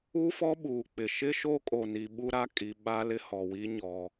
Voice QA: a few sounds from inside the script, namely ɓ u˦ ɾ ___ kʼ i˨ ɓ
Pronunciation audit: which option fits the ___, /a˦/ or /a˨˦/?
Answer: a˦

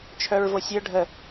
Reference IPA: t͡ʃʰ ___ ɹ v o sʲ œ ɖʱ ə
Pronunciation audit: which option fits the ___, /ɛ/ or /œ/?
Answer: œ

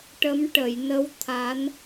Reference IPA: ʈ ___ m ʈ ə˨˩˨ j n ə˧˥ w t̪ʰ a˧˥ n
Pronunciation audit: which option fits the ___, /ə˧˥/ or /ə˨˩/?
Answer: ə˧˥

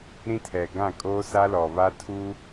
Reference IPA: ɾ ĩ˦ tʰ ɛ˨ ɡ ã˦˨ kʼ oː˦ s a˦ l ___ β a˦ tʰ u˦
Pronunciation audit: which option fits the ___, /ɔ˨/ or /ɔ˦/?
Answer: ɔ˨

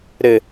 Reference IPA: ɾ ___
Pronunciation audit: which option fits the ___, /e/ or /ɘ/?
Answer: ɘ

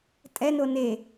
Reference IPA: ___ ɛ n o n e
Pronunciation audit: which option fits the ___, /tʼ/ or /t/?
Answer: tʼ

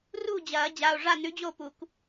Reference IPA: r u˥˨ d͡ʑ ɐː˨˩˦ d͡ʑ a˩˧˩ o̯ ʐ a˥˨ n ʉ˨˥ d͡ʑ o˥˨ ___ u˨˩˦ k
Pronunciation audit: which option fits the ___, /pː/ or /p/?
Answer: p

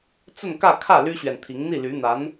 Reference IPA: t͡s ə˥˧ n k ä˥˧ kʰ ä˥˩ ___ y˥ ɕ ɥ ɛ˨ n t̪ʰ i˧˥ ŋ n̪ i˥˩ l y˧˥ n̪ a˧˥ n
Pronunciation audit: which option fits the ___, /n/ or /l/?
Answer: l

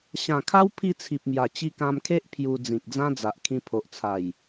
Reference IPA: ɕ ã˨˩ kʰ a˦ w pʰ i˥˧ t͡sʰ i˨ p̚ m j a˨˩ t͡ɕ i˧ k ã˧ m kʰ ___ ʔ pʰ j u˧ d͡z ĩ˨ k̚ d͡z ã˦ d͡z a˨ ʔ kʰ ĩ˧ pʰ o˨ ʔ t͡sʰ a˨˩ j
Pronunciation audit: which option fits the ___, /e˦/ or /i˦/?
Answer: e˦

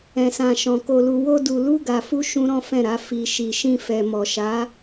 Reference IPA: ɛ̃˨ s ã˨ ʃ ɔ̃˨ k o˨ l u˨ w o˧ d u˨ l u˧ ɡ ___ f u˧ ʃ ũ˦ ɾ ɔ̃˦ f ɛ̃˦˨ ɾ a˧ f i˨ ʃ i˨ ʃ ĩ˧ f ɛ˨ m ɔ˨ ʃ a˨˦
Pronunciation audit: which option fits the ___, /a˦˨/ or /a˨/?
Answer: a˨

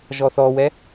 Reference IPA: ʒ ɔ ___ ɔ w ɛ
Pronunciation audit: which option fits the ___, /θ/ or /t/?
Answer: θ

